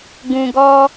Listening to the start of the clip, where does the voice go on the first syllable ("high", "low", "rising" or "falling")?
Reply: low